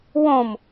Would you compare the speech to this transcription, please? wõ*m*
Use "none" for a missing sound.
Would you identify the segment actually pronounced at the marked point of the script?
m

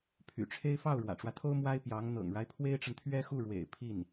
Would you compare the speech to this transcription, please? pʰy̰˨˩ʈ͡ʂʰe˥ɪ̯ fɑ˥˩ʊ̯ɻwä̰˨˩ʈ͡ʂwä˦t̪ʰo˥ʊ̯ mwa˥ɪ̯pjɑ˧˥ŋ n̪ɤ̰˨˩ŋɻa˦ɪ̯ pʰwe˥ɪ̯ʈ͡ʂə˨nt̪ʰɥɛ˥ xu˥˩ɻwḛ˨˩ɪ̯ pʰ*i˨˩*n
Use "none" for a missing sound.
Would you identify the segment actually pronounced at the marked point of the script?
i˥˩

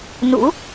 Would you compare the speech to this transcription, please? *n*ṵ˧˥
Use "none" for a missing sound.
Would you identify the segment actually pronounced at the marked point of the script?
n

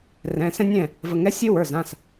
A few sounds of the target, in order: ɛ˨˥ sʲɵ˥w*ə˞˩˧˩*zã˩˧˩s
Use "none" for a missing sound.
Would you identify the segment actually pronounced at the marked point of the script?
ə˞˩˧˩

